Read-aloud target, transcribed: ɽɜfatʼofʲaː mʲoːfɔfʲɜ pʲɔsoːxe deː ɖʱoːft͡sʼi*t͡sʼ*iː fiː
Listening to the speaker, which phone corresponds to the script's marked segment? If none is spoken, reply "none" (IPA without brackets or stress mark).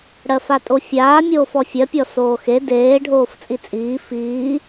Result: t͡sʼ